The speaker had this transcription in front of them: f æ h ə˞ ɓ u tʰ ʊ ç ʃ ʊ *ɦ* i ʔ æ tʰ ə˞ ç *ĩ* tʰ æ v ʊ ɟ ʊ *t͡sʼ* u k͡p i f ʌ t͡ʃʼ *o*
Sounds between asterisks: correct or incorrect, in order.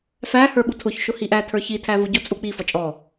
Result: incorrect: h, incorrect: i, correct, incorrect: ɔ

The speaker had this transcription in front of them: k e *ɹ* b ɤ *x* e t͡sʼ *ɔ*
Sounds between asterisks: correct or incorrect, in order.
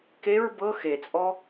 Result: correct, correct, correct

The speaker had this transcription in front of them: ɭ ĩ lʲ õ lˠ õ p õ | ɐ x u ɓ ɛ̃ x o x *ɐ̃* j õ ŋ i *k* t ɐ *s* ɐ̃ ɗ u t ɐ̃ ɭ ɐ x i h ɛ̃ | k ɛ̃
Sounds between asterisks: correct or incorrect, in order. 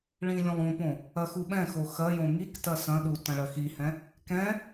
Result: incorrect: ɐ, correct, correct

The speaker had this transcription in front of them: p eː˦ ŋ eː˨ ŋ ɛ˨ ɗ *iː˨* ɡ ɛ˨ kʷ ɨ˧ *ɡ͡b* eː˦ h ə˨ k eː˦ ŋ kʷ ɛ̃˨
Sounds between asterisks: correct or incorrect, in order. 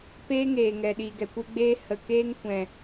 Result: correct, correct

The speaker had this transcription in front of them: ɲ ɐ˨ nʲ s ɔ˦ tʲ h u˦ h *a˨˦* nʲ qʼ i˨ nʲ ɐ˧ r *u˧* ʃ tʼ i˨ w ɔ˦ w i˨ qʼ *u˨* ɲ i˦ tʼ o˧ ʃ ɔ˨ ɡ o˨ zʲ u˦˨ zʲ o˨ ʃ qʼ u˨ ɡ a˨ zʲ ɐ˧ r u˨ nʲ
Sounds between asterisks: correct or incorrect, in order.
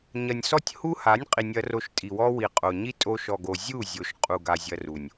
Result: correct, incorrect: o˧, incorrect: o˨

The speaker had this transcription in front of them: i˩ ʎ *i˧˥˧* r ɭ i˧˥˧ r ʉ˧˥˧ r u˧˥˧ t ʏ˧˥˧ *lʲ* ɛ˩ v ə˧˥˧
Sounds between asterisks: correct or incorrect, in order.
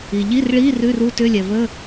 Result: correct, correct

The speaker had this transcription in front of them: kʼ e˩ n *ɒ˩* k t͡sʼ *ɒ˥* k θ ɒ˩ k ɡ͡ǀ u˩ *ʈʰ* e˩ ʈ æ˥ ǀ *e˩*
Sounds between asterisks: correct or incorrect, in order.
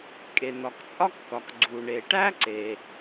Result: correct, correct, incorrect: ɳ, correct

